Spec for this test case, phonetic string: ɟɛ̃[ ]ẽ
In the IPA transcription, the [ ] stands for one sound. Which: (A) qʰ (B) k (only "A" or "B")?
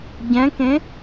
B